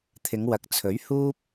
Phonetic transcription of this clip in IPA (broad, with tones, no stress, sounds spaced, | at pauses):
t̪ʰ ɪ˨˧ ŋ w ɐ˨ k̚ t͡sʰ ɵ˨˥ ɥ h uː˥ p̚